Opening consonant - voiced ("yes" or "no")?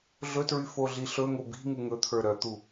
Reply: yes